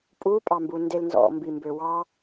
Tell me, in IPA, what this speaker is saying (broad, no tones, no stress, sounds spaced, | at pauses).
pʼ u pʼ ɑ m b u n d e l n z ɔ̰ m b i m b ø w ɑ